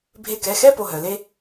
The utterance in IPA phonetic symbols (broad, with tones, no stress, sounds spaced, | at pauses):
bʱ e˧˩ k ɛ˥˩ x ɛ˥˧ p o˥˧ ɦ œ˩˧ l e˥